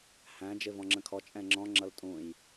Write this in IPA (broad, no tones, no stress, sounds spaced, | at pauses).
h æ̃ d͡ʒ ɪ v ɔ̃ ŋ͡ǁ ə̃ kʰ ɔ t͡ʃʼ ɛ̃ ŋ͡ǁ ɔ̃ ŋ͡ǁ ʌ l tʼ ũ j